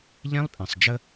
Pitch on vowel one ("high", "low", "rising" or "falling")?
high